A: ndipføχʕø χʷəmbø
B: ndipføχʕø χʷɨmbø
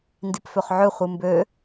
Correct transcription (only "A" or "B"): B